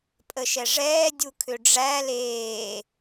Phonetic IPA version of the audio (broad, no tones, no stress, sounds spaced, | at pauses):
pʼ ə ʃ ɛ ʐ ɛː dʲ u kʰ ʏ ɖ͡ʐ æ l eː